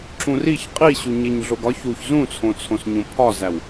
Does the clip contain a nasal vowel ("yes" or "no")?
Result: yes